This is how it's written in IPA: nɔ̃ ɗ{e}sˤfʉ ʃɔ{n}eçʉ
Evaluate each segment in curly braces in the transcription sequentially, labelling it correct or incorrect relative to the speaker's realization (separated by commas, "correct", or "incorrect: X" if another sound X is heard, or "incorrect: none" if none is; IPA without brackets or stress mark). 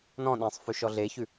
incorrect: ẽ, incorrect: ɮ